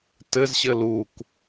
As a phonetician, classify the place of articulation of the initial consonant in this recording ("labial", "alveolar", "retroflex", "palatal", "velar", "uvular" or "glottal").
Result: alveolar